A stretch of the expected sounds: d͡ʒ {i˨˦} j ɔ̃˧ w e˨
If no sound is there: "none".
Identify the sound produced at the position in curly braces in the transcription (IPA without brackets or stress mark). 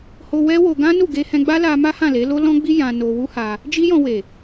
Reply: i˦